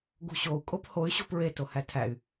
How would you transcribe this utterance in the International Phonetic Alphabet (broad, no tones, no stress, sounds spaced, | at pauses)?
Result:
ɡ ṳ ɕ o u̯ kʼ o p h o y̯ ɕ o̤ p ɹ e t o h æ tʰ æ y̯